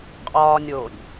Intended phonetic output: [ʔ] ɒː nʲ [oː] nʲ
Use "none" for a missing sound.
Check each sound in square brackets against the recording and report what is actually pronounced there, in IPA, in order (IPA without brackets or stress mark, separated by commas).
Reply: qʼ, oː